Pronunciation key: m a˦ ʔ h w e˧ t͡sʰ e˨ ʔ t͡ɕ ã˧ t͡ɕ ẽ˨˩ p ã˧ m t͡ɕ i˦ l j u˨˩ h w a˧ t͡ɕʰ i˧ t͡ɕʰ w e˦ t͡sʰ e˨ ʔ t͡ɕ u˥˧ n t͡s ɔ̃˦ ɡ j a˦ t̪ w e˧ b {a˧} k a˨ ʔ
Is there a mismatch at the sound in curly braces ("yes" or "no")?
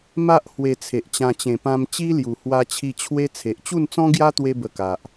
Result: yes